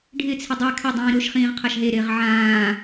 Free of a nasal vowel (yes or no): no